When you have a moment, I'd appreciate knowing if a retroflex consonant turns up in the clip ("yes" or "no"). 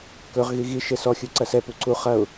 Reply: no